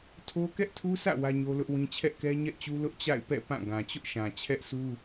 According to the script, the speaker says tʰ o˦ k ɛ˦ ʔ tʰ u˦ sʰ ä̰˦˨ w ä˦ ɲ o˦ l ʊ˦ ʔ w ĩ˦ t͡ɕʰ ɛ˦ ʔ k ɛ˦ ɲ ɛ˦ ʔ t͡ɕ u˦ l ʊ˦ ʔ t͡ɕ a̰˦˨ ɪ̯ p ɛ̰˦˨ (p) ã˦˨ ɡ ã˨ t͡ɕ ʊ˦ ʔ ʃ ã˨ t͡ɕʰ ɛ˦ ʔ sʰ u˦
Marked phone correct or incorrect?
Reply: correct